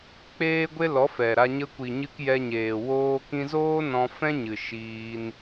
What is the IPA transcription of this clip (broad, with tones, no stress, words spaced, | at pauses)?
k͡peː˦ɡʷe˦ lɔ˨˦fɛ˨ɾa˧ ɲə˧kʷi˨ɲɨ˧k jɛ˧ɲeː˨ woː˦kĩ˦ zoː˦ nɔ̃˧ fɛ̃˦ɲɨ˨ ʃiː˧n